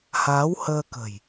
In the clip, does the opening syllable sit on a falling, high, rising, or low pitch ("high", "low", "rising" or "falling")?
rising